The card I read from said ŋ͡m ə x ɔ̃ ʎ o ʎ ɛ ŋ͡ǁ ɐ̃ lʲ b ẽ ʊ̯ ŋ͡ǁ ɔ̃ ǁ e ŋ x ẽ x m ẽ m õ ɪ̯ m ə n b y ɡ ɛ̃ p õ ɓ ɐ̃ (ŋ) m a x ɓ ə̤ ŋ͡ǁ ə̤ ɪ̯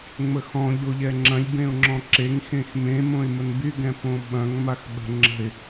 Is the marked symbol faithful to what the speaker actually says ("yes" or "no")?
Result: yes